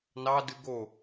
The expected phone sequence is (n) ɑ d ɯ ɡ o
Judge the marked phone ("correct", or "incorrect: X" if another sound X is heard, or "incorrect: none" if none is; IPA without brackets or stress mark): correct